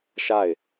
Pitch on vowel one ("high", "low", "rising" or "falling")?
falling